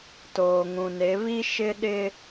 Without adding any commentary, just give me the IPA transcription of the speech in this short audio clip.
toː˨ŋũ˨ne˨˦ βi˦ ʃɪ˦ɗɪ˦

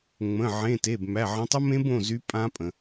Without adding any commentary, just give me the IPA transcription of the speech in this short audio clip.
ŋ͡mə̃˩˧˩ ʕẽ˩˧˩ te˩˧˩bmæ˩˧˩ʕə̃˨˦ tˤʊ˦˥mẽ˦˥bõ˩˧˩zy˨˦ pʼã˦˥pʼə̃˩

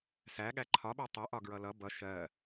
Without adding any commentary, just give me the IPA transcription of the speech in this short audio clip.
sæɠæ ǃʰɒɓɜ tˤɜʔɒ ɡɹʌlʌ bʌ ʃɜ

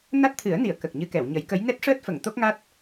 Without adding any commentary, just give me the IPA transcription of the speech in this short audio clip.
na˦˥t̚t̪ʰɨ˨˩˦ə̯ni˨˩˨ə̯ kə˨˩k̚ɲɨ˧kɛ˨˩˨w ɲə˨˩˦jkə˧˥j nɛ˦˥t̚ʂəː˦˥t̚ fə˨˩˨ŋ t̪o˦˥k̚ŋa˦˥t̚

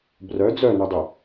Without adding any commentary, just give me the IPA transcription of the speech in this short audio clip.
brœ d͡zœnudˤy

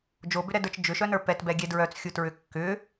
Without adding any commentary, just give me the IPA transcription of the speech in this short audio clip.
d͡ʒobʏɾɛdə˞t͡ʃ d͡ʒʏʃœnə˞ pɛtbɛɡʲɛ dɹœt͡sxʲutɹʏ kːʏ

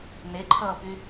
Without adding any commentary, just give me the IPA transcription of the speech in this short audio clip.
neǃʰʌːpy

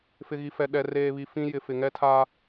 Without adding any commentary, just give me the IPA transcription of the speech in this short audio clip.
fɪ˨ɣi˨fɛ˨ ɗɛ˨ reː˨βi˨ fĩ˦ jɪ˨fɪ˨ ŋɛ˦tʰa˦

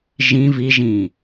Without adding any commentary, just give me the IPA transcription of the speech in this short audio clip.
ʒĩ viʒĩː

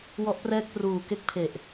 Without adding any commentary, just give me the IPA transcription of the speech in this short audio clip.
wɔ˦˥ʔprɛː˥˩k̚ pruː˨˩ke˥˩k̚ pʰe˨˩ʔ

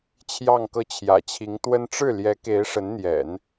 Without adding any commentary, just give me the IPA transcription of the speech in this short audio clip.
t͡ɕʰjɑ˥˧ŋkɤ˥˩ t͡ɕʰjä̰˨˩t͡ɕʰi˧˥ŋt̪wə˥n ʈ͡ʂɻ̩˥˩ljɛ˧˥ke˧˥ɪ̯ ʂə˧˥nn̪jɛ̰˨˩˦n

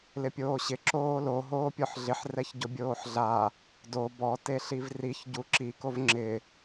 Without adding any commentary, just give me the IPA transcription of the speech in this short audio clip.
lɪpʲoːɕɪ ǁoːlo ɦoːpʲɔħɮɪħ rɛçɟʊbʲoːħɮa | do bɔ teɬivriç ɟuǁi kovŋ͡ǁɪ

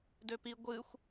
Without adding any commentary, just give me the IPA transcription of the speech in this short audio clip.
døpi ɡʷɨxʷ

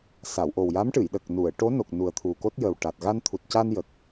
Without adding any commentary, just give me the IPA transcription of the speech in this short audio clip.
sa˨˩˨wʔo˨˩wja˧˥mʈɨ˨˩˨j ɗə˨˩k̚ nu˨˩˨ə̯ʈo˧˥no˨˩k̚ nu˨˩ə̯t̪ʰu˨˩ko˦˥t̚jə˨˩w ʈa˨˩t̚ ɣa˧nt̪ʰu˨˩t̚ca˧n jə˨˩k̚

